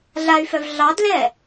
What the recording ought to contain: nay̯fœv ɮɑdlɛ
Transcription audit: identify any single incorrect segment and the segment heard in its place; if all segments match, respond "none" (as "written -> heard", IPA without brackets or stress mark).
n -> ɮ